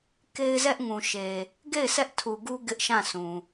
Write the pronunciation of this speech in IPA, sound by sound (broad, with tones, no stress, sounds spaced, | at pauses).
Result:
k e˦ ɪ̯ z ɛ˦ ʔ ŋ ũ˨ ʃ e˨ | ɡ e˦˨ ɪ̯ s ɛ˦ ʔ tʰ u˨ ɡ u˦ ɡ ɪ˦ ʔ ʃ ã˦˨ sʰ ũ˨